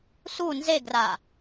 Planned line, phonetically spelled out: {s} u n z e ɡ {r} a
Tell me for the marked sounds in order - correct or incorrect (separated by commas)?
correct, correct